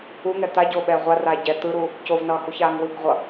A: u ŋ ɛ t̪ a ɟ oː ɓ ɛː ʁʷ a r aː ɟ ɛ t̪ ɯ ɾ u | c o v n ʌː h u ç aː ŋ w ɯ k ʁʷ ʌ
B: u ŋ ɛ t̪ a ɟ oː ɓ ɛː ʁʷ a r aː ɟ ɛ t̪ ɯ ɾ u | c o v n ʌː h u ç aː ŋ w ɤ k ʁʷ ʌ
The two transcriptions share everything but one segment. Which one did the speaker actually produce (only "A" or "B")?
A